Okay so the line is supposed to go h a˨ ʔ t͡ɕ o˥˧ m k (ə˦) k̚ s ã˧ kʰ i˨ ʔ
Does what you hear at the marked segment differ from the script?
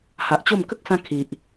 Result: no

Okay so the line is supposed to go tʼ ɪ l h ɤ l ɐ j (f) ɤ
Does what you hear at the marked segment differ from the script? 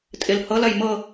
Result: yes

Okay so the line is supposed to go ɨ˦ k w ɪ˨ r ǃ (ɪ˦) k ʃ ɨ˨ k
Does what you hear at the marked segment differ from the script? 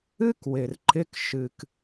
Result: no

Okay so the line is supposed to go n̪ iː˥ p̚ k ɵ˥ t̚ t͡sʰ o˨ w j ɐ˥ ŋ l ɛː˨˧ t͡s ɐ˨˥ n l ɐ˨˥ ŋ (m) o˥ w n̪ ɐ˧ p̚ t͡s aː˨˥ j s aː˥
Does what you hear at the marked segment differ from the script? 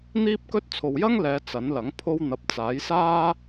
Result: yes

